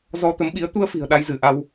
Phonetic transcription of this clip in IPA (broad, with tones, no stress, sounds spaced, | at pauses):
z ɔ˧ t̪ ə˨˦ m ɓ i˨˦ ə̯ t̪ u˧ ə̯ f i̤˨˩ ə̯ ɗ a˧ j z ɨ˧˩ ʔ a˧ w